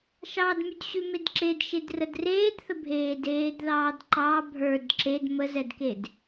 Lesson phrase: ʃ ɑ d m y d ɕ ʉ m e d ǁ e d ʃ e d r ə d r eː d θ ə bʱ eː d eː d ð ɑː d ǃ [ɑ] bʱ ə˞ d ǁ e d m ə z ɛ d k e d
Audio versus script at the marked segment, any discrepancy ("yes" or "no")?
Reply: no